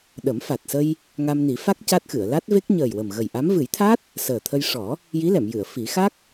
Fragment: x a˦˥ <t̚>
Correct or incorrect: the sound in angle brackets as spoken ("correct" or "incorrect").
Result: incorrect